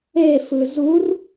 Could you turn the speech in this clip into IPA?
e f ɯ z u r

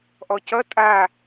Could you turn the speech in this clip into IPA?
ʔ ɔ c ʌ tʼ a

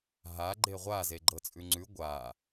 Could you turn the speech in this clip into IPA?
ɦ a ɡ͡ǃ e ʁʷ a z e ɡ͡ǃ ɤ t͡sʼ ʉ ŋ͡ǀ ʉ ɡʷ a

